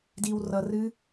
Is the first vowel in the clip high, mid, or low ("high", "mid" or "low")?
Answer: high